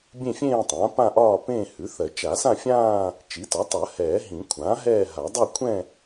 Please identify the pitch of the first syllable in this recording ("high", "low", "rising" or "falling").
falling